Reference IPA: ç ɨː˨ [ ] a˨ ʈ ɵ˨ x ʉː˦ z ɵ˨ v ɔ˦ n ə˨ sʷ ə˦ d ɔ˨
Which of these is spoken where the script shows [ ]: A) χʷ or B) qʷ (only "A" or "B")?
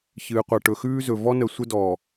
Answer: B